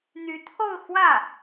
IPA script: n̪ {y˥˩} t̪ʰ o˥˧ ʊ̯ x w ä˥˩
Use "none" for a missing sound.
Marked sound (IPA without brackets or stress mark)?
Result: y˧˥